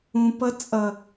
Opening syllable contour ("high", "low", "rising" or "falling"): low